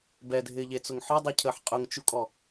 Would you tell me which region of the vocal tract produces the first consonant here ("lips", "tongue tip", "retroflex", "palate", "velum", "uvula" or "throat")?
lips